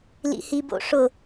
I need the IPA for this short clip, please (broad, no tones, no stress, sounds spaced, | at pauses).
l ḭ h i b o̰ ʂ ʊ